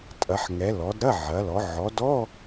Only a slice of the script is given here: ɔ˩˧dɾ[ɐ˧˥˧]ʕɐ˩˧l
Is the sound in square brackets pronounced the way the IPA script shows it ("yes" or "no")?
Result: yes